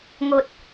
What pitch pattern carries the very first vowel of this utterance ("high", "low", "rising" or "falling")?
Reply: low